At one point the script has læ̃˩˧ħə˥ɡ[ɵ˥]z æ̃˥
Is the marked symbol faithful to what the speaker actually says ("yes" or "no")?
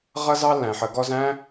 no